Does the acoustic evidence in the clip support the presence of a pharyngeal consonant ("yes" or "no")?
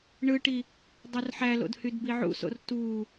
yes